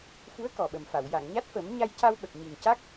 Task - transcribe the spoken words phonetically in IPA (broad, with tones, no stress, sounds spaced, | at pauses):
f u˧˥ ə̯ k ɔ˨˩ ɓ ə˨˩ m f a˨˩˨ w j a˨˩˨ ŋ ɲ a˦˥ t̚ f ə˨˩˦ m ɲ a˧ j c a˧ w ɓ ə˨˩ k̚ ɲ i˨˩ ŋ c a˦˥ k̚